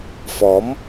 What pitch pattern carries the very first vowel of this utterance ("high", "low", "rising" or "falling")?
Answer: rising